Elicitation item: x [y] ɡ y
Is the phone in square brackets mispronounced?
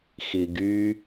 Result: yes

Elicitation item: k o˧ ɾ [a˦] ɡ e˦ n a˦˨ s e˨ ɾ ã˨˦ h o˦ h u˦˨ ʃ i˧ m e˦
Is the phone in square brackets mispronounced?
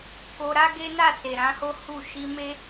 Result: no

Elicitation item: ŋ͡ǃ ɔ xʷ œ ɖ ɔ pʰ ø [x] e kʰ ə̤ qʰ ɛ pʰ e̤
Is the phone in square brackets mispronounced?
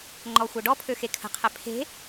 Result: no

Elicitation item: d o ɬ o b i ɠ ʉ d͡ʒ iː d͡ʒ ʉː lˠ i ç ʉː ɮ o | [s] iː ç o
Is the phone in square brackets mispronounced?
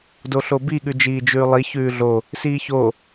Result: no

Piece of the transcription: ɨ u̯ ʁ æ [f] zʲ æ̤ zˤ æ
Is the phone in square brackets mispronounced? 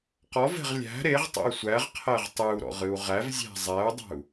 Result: yes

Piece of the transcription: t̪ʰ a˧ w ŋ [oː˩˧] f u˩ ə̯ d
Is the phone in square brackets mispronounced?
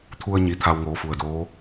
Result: no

